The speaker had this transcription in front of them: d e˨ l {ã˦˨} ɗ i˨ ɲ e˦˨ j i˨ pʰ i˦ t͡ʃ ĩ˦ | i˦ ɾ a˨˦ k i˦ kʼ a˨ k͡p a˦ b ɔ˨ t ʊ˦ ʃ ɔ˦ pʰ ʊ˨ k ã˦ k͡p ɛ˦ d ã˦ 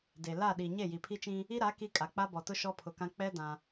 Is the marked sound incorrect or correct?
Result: incorrect: a˦˨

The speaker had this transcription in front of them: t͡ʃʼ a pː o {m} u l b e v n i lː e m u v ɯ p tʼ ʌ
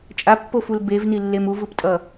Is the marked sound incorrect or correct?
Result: incorrect: f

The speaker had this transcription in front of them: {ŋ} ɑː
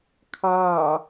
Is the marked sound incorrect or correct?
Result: incorrect: kʰ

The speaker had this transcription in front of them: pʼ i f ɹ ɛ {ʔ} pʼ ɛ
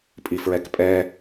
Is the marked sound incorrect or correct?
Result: incorrect: k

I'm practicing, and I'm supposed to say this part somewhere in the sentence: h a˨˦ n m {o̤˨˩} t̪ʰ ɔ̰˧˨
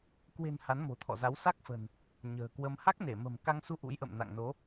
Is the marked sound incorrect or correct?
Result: correct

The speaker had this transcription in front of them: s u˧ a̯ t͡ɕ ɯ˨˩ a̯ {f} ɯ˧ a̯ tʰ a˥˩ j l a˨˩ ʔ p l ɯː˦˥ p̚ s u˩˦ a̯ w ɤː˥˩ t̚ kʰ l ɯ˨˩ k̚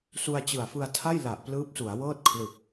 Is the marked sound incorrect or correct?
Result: correct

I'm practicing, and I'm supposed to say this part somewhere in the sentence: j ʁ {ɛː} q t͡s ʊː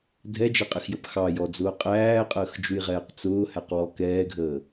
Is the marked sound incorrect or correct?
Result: correct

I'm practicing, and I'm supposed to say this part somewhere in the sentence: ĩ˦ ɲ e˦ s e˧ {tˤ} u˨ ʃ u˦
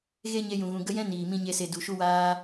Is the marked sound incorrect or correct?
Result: incorrect: d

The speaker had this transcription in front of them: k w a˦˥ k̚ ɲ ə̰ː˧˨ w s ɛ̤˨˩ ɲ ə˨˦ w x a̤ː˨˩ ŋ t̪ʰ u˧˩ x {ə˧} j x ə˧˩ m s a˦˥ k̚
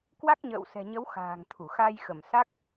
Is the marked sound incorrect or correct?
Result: incorrect: a˧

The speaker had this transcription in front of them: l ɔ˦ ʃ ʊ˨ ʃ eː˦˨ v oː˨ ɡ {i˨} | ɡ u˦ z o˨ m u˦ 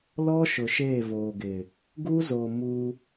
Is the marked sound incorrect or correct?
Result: incorrect: ɪ˨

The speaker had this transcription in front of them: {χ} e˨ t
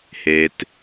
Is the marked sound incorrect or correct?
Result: incorrect: h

